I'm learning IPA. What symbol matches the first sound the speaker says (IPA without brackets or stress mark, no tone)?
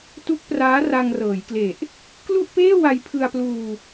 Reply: t